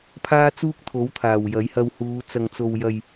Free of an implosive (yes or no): yes